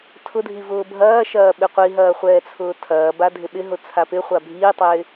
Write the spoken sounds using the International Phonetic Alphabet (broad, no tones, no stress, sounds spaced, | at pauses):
tʰ ʊ dʱ i v ʊː bʱ ɐː ʃ ɐː ɓ ɪ qʷ i ɦ ɐː χʷ ɛː t͡sʰ ʊː tʰ ɐː b a dʱ ɪ ɓ ɪ ɦ ʊ t͡sʰ a p ɪ χʷ a bʱ iː tˤ ɪː